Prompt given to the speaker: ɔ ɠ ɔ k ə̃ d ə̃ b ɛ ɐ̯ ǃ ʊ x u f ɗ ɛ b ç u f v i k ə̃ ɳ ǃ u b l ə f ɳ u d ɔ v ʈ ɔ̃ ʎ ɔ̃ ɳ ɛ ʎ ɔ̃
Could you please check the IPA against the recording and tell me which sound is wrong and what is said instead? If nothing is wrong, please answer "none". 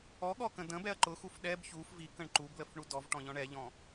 none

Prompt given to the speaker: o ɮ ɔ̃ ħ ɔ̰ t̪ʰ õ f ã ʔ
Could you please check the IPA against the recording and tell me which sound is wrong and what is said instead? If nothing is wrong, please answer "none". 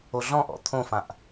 ħ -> ʔ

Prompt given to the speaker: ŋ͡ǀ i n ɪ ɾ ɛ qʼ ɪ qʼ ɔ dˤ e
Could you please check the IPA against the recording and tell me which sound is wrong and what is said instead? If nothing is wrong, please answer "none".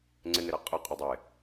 i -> ɪ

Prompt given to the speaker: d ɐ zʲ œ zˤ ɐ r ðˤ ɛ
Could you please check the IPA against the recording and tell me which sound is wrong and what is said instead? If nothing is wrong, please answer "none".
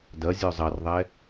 none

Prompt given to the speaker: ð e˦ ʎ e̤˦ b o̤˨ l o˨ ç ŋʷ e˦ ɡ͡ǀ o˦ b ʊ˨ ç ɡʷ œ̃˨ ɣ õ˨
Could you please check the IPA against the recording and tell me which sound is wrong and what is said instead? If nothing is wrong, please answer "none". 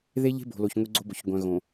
none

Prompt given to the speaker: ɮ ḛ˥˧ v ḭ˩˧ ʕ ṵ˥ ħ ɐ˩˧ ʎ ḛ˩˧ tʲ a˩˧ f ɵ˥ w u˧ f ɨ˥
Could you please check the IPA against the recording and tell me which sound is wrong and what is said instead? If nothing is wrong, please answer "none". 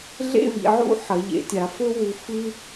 none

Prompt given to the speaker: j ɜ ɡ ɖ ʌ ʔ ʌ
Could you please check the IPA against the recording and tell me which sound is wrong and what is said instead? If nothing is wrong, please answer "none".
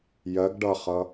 ʔ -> χ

